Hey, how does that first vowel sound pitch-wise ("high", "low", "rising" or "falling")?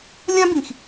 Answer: high